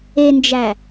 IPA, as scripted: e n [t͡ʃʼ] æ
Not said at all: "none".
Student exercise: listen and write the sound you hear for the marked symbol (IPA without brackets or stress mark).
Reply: d͡ʒ